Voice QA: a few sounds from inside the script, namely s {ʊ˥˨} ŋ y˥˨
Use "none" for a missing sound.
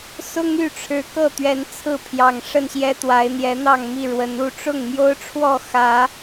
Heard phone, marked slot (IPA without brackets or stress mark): ʊ˦